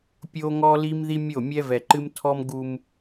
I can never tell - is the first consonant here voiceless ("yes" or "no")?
yes